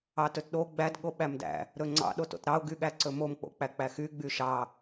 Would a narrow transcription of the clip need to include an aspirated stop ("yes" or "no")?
no